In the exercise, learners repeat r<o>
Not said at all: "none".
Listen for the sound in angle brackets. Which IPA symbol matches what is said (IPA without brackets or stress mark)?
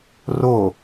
o